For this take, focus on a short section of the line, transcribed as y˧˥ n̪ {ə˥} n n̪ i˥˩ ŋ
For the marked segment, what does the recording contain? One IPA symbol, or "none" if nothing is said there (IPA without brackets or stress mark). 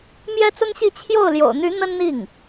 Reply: ə˥